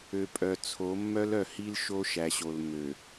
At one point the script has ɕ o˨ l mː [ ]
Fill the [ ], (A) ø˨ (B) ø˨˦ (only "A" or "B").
A